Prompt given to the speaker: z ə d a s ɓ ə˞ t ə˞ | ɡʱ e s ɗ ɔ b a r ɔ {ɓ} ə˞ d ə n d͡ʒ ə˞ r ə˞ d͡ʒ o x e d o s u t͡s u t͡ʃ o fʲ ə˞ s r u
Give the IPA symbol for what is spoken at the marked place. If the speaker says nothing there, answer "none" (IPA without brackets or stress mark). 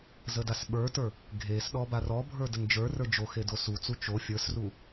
bʱ